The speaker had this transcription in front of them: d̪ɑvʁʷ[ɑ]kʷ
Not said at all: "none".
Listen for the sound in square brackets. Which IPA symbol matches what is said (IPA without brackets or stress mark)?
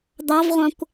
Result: ɑ̃